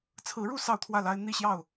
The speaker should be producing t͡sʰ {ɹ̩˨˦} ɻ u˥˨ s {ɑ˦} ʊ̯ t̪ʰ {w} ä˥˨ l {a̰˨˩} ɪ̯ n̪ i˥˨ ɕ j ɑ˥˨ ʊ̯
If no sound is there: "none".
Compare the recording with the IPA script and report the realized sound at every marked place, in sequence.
ɹ̩˨˦, ɑ˥˨, w, a˦

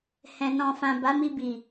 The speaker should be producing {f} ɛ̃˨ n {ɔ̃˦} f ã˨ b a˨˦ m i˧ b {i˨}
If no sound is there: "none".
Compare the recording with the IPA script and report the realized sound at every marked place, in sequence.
h, ɔ̃˨, i˨

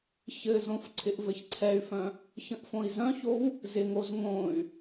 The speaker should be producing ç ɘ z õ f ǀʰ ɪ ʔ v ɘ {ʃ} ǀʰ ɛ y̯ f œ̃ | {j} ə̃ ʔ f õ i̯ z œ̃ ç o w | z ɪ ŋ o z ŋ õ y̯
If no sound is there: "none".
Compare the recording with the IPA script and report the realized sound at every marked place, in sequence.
ç, ç

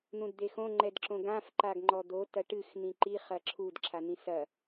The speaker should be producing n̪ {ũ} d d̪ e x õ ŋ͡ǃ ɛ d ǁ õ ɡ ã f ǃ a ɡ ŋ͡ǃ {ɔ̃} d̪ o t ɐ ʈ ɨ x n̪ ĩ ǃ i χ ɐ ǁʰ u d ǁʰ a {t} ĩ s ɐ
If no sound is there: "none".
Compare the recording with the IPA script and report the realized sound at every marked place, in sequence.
ũ, ɔ, n̪

